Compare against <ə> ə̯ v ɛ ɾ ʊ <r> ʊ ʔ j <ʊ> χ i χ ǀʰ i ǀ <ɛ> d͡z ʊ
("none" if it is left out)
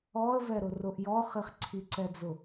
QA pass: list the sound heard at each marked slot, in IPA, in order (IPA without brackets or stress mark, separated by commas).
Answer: ɔ, r, ɔ, ɛ